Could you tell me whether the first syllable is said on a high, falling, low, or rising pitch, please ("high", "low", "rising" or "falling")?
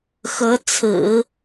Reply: rising